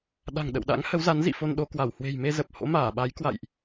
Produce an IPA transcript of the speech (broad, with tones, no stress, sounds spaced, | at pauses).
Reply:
ɗ a̤˨˩ ŋ ɗ ə̰˧˨ w ɗ a̰˧˥ ŋ h ə˨˦ w z a˨˦ n z ḭ˧˨ f o˧ n ɗ o˨˦ k w a˧˩ w h w e̤˨˩ j m e˧ z ə˨˩ p̚ h o̰˧˥ m aː˧˩ ɓ a˨˦ j k w a̰˧˨ j ʔ